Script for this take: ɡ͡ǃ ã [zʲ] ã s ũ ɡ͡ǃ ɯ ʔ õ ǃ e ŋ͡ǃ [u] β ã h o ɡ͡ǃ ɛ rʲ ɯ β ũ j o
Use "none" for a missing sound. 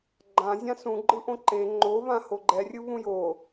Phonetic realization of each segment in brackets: zʲ, o

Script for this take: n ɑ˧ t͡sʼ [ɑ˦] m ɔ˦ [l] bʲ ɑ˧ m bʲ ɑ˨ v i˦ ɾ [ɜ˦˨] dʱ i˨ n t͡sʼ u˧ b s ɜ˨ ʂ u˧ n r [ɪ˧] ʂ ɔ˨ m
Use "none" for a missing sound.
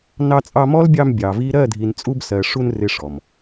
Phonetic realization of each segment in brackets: ɑ˧, l, ɜ˦˨, ɪ˧

